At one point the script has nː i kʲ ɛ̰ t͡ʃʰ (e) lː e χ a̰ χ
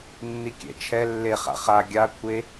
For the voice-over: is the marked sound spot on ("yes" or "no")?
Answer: no